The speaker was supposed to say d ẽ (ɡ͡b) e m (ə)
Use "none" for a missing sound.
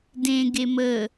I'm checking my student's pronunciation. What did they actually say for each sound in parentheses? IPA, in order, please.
ɡ, ə

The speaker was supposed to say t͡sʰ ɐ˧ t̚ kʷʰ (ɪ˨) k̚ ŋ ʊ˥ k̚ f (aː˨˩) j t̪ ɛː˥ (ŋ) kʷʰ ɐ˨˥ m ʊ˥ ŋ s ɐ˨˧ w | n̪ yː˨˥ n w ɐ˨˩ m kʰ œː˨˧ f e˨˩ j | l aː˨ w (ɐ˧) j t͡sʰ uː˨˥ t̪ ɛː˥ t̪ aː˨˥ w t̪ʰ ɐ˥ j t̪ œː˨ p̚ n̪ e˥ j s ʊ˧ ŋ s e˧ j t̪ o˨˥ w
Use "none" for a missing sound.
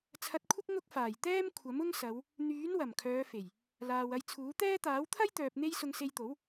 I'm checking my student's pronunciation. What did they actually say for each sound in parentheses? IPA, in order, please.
ɪ˥, aː˨˩, m, ɐ˧

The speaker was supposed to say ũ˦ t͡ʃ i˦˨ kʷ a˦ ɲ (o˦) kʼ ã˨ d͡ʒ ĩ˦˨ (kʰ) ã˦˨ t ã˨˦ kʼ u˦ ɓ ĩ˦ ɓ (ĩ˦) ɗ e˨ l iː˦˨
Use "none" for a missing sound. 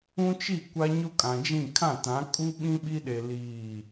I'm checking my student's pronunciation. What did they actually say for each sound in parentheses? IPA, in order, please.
o˦, kʰ, i˦

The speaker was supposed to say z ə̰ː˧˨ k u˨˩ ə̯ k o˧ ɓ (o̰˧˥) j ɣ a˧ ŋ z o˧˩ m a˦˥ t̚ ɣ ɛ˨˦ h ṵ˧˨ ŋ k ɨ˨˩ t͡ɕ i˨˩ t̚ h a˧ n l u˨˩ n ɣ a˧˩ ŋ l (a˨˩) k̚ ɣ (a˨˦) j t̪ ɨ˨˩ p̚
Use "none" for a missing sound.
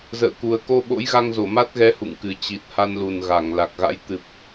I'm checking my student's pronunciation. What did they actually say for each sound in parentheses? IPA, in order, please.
o̰˧˥, a˨˩, a̰˧˥

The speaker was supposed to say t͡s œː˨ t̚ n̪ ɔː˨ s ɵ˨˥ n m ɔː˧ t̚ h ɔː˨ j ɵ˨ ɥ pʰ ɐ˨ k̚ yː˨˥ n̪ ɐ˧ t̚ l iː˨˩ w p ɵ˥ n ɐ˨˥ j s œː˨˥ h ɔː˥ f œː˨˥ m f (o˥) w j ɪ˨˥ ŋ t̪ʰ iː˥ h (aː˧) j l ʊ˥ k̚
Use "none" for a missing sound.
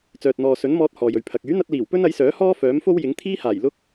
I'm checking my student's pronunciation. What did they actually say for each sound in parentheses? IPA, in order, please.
o˥, aː˨˩

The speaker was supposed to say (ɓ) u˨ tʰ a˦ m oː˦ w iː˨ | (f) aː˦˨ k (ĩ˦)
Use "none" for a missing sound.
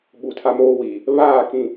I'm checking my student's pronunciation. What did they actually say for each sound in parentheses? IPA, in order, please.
ɓ, β, ĩ˨

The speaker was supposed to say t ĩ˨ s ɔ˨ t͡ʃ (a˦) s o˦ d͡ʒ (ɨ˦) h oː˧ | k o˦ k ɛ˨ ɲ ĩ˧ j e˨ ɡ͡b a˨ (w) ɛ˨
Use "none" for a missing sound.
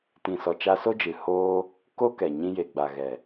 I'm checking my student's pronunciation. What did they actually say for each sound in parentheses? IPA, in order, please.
a˧, ɨ˨, ɣ

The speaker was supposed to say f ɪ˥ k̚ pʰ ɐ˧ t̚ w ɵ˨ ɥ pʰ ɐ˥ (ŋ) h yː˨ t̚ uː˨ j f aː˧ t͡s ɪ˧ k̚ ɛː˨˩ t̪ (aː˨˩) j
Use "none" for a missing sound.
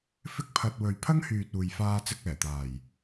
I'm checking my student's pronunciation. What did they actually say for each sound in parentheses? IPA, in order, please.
ŋ, aː˨˩

